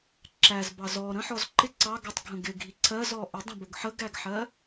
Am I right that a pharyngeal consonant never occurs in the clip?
no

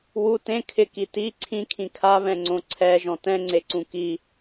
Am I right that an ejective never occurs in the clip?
yes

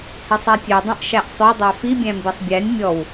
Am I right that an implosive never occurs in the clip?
yes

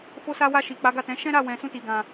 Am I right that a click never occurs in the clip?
yes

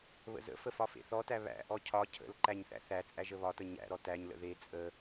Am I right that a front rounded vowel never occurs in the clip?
yes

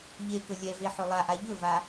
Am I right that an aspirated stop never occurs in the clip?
yes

